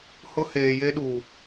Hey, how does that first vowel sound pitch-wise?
high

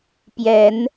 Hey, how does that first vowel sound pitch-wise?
rising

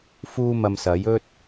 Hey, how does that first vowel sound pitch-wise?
high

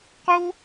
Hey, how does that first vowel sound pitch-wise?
high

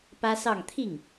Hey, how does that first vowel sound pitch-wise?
high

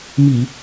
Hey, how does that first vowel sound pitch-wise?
low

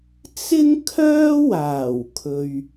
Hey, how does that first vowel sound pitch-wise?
high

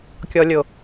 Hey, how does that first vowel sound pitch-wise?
low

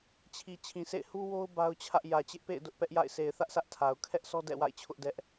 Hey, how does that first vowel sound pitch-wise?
low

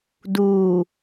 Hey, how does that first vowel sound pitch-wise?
low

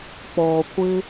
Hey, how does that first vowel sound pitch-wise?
low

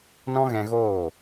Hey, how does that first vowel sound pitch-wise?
high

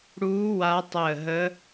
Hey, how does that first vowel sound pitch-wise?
rising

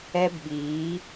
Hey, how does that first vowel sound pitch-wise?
high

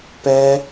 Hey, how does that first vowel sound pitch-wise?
high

